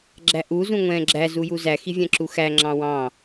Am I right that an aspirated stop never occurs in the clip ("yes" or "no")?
yes